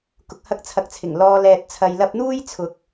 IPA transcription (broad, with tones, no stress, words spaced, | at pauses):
kʊ˨k̚hɐ˧k̚ t͡sʰɐ˨k̚t͡sʰɪ˨˩ŋ lɔː˧ lɛː˨t̚t͡sʰɐ˨jlɐ˧p̚ n̪uː˥j t͡sʰʊ˨k̚